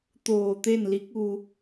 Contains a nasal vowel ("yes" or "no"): no